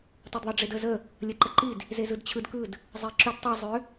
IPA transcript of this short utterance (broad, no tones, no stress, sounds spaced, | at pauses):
tˤ o d ðˤ ɯ ɖ͡ʐ e d ə z ə | lʲ ə ǃ ə ǃ i d | z e z ɯ d t͡ɕʰ ɯ d k ɯ d | zˤ e ǁ ʏ d tˤ ɯ zˤ ʏ